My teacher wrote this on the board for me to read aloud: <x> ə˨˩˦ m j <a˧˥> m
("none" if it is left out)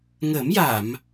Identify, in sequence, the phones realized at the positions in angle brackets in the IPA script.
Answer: ŋ, a˨˩˨

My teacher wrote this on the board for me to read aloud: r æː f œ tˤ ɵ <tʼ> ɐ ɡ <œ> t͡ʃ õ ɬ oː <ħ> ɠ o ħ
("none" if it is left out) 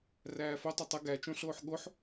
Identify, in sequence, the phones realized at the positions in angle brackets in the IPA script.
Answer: tˤ, æ, ħ

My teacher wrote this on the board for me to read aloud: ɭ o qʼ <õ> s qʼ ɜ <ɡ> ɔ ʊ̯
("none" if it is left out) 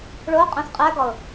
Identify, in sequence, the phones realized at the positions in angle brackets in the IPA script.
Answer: õ, ɡ

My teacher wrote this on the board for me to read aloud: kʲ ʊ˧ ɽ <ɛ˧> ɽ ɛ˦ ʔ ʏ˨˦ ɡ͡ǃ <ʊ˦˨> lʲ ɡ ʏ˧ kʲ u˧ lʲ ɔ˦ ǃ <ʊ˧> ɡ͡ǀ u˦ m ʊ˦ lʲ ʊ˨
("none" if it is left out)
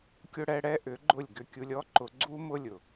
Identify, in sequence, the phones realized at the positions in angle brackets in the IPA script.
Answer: ɛ˧, ʊ˦˨, ʊ˧

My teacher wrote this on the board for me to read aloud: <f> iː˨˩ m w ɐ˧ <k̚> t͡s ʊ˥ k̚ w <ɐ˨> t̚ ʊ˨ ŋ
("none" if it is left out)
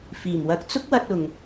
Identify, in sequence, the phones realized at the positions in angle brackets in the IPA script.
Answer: f, k̚, ɐ˧

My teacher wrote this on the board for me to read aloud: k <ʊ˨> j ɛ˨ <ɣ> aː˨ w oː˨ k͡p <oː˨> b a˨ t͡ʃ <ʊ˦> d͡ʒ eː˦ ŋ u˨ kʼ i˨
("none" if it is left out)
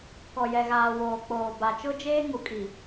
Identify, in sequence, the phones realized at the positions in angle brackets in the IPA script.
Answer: ɔ˨, ɣ, oː˨, ʊ˦

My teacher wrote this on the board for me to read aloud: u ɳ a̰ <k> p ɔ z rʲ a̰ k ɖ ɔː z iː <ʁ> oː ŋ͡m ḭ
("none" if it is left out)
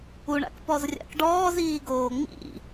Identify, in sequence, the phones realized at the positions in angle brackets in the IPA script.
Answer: k, ɡ

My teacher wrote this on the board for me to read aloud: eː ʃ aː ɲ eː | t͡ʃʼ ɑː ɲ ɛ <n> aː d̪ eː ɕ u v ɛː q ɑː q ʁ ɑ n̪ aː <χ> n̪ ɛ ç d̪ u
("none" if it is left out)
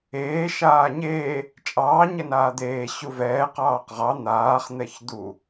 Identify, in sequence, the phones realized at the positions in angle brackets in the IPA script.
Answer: n, χ

